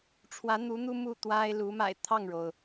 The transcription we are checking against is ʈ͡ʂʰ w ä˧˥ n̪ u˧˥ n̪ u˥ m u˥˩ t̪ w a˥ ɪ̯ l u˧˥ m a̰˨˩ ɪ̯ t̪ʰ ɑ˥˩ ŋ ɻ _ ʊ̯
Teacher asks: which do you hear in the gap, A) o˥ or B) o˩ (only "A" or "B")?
B